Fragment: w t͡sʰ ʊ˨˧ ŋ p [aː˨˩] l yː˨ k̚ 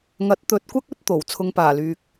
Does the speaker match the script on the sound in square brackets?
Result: yes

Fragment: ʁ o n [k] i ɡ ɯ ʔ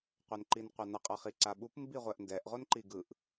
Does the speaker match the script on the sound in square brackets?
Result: no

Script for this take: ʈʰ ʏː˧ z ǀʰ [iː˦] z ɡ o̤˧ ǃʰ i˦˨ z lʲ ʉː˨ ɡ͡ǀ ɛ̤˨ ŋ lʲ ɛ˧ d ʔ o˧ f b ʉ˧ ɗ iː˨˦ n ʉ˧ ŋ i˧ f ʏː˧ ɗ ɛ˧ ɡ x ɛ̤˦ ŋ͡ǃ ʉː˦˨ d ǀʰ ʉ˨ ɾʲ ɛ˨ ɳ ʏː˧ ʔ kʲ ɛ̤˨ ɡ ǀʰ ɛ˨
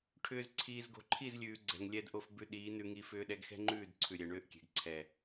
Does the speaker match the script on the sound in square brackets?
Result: no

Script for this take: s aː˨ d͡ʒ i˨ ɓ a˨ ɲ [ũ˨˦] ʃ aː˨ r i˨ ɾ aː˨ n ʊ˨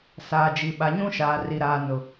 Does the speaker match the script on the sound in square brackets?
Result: no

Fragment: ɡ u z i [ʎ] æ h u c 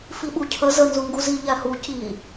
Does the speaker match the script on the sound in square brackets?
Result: yes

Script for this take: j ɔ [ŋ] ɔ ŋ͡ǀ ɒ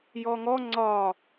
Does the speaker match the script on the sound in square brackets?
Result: yes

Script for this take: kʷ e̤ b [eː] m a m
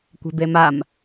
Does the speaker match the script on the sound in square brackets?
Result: no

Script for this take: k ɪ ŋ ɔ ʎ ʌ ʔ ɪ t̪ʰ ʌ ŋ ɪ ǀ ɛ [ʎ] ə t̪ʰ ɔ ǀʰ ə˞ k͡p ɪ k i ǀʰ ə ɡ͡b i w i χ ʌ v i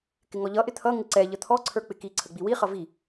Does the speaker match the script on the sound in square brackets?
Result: yes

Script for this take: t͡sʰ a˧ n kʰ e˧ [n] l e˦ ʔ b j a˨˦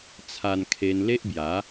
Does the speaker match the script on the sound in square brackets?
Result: yes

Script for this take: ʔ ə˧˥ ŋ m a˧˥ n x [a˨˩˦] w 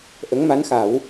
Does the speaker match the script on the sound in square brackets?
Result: yes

